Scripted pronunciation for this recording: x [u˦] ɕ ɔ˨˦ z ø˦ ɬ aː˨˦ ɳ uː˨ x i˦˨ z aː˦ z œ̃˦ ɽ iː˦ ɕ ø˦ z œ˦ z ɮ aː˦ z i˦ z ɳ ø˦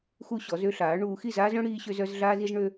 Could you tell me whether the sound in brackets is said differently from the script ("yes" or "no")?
no